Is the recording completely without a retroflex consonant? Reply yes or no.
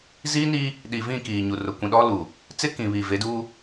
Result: yes